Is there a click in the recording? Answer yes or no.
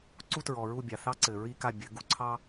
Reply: yes